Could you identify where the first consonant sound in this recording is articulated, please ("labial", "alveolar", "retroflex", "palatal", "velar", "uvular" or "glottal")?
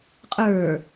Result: uvular